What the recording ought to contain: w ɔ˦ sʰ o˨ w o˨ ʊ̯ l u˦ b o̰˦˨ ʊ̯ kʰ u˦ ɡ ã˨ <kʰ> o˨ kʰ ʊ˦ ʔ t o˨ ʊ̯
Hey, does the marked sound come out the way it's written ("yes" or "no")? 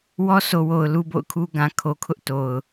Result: yes